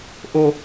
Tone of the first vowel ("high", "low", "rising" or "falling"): high